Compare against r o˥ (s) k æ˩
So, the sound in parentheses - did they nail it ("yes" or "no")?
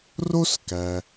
yes